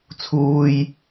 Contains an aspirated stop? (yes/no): yes